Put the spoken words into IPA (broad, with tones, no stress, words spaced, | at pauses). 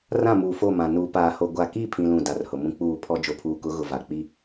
rã˦˨muː˨fo˦˨mã˨ nuː˨paː˨ho˨ ɡʷa˨ki˦˨ pʰĩ˦lũ˦˨ da˨rhʊ˨mũ˦ k͡puː˦˨pʰɔ˦ d͡ʒo˨pʰuː˨kʊ˨˦ ɣʊ˨va˨k͡pi˦